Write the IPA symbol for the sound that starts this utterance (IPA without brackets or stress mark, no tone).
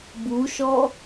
b